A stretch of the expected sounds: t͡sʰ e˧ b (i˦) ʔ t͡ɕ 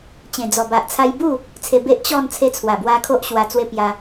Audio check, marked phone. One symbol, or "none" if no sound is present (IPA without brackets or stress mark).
e˦